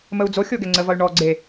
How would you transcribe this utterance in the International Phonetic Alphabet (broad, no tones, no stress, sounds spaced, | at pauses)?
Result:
m ə u̯ d͡z o xʲ o ɡ ɛ ŋ͡ǀ ə v ʌ y̯ ɳ ɔ ɡ͡ǀ e